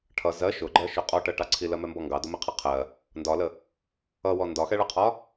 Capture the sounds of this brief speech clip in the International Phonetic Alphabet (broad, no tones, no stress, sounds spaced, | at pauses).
ʈʰ ʌ z ɜ ʃ ʊ ɡ͡ǃ ɜ ʃ ʊ qʼ ɔ ʈ ɜ ʈ ɑ ǀʰ i l ɜ m ɛ m b ɔ ŋ ɡ ɑ d ʊ m i qʰ ʌ qʰ ɜ | n d ɒ l ə | ʌ w ɔ n d ɒ x ɛ ɭ ʌ qʰ ɒ